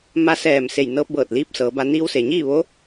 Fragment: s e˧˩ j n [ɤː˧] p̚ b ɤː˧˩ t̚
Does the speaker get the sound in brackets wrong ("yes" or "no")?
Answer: no